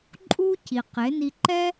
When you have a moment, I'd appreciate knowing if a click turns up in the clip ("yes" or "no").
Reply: yes